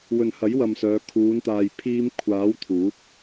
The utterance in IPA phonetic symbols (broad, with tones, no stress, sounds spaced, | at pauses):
w ɵ˨ n h ɐ˨˥ j w ɐ˨ m s œː˨˧ kʰ uː˨˧ n t̪ aː˨ j pʰ iː˧ m kʷʰ aː˨˥ w t̪ʰ uː˨˥ k̚